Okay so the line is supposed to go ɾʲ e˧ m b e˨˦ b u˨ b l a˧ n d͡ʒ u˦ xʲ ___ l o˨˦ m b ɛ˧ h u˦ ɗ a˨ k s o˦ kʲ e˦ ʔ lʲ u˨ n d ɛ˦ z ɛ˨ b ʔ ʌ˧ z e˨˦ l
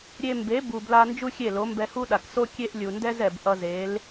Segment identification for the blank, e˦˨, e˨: e˦˨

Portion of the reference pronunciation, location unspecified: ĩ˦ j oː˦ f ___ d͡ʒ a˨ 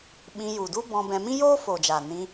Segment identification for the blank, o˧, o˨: o˨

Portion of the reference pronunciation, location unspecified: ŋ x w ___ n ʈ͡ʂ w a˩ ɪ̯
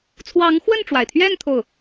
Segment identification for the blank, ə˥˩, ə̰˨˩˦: ə˥˩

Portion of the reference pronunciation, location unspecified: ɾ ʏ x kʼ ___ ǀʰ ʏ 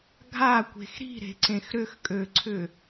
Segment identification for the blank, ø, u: ø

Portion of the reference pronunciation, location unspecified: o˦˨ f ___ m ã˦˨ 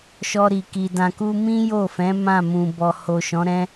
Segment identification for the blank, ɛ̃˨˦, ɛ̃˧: ɛ̃˨˦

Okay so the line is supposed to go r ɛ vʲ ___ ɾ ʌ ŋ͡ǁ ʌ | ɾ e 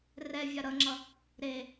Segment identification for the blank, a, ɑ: a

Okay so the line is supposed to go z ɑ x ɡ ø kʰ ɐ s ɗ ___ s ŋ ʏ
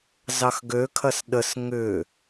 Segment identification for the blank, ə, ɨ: ə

